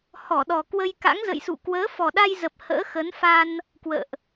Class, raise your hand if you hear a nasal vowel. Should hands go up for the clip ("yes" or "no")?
no